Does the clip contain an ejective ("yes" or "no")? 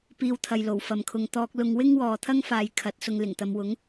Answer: no